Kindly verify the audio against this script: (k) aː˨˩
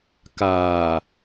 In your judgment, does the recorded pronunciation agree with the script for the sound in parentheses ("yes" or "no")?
yes